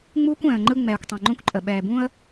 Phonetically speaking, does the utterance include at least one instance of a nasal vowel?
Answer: yes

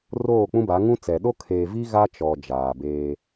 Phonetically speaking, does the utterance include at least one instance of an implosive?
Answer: yes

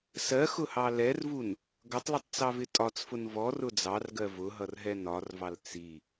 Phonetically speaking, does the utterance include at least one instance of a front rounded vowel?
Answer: no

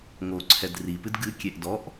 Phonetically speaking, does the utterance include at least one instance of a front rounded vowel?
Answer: no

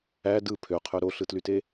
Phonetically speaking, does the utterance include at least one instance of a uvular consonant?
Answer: yes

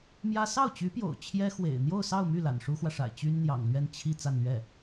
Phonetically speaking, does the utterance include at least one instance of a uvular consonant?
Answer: no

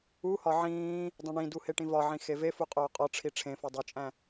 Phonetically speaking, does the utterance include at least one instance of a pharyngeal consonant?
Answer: yes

